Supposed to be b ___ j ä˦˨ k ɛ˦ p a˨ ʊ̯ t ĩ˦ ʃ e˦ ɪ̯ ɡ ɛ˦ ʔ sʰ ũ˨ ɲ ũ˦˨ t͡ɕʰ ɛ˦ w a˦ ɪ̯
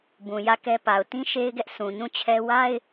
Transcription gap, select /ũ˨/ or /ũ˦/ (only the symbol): ũ˨